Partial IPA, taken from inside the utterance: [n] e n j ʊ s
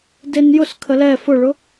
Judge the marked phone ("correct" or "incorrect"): incorrect